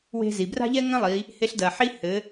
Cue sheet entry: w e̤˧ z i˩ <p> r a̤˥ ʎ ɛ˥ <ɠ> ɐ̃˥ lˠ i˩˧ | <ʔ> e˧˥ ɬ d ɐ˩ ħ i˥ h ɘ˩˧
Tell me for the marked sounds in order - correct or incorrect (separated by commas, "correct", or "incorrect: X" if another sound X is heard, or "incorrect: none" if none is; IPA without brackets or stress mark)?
incorrect: b, incorrect: ŋ, incorrect: h